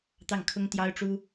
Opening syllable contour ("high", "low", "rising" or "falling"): falling